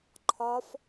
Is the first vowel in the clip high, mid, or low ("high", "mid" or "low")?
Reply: low